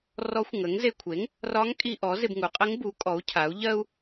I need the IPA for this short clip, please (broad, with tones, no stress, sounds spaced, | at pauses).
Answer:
r ɔ˧˥ xʷ ŋ ə˩˥ ŋ z e˧ kʷʰ e˩˥ ŋ | r ɒ˧˥ ŋ kʼ i˧ ʔ ɔ˩˥ z ɪ˧ b ŋ u˩˥ qʼ ɪ˧˥ ŋ b u˩˥ kʼ ɔ˩˥ u̯ cʰ a˩˥ u̯ ʎ ɜ˧ u̯